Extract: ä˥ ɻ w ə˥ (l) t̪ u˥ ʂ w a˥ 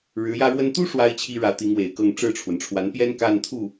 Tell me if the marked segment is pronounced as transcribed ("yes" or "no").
no